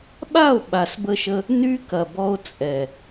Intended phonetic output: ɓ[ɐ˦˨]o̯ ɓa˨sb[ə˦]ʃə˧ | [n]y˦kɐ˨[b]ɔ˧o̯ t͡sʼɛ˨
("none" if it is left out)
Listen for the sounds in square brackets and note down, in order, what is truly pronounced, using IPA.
a˦˨, ə˧, n, b

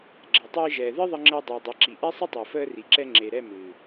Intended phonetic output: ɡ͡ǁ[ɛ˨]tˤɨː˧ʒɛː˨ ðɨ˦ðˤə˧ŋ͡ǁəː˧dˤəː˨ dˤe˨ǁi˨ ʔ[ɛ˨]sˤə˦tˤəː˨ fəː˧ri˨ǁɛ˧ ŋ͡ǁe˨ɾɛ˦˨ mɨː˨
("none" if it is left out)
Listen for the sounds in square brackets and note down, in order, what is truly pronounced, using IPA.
ɛ˨, ɛ˦

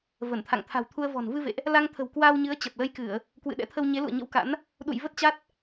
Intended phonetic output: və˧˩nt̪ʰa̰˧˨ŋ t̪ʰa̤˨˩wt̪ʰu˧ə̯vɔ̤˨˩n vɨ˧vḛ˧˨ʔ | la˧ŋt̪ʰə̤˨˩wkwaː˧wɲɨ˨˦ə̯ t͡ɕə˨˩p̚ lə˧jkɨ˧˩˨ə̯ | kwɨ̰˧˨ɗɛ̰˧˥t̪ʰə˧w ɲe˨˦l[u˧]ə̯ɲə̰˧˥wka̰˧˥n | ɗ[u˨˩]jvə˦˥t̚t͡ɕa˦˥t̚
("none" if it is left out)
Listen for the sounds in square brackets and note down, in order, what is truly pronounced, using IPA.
ṵ˧˨, ṵ˧˨

